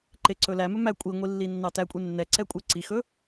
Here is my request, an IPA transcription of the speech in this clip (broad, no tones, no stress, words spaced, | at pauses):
ǃeǀɵlæmɵ mæ kʷʼiŋʷi lːinːɑtækʷʼe nːɛǀɛ kʷʼeǀixɵ